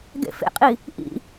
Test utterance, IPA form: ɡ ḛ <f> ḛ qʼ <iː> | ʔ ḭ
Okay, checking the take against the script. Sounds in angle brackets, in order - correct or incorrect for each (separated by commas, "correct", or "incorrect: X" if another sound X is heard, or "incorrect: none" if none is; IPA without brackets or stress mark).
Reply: correct, incorrect: i